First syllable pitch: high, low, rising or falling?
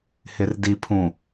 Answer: low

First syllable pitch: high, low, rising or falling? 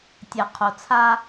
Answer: low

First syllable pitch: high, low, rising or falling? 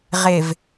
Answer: low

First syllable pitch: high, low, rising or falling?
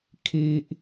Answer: low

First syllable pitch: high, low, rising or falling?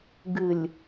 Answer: low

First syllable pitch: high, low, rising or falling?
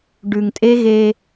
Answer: low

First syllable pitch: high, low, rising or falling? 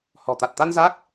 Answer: low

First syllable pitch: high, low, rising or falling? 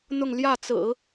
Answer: falling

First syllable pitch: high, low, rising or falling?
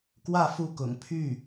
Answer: falling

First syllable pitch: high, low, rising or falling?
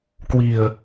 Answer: low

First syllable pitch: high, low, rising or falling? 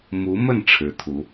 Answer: rising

